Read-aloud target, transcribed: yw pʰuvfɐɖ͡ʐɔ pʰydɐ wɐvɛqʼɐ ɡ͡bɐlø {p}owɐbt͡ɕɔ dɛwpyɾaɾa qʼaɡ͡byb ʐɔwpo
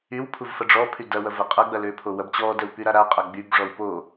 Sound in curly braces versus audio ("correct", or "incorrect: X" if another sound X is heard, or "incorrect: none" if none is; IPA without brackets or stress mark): incorrect: pʰ